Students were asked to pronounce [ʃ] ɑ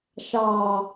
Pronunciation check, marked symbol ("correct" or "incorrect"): correct